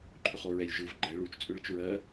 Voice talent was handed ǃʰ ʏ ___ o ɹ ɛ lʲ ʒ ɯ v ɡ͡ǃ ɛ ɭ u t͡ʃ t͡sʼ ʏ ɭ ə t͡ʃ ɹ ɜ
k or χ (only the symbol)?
χ